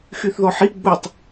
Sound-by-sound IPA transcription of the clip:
xyθðɔħi ɡ͡butˤ

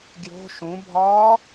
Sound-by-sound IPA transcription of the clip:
ɡjo̤ ʃũbʱɒː

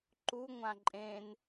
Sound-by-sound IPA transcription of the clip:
ǃu ŋʷãǃʼẽn

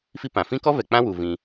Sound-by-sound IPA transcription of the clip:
fi˦pã˨ fĩ˦kɔ˦ vɛ˨k͡pã˦ wu˧ vĩ˧

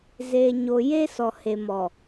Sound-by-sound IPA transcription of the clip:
zeː˨ɲo˨ je˦sɔ˨he˨mɔ˨

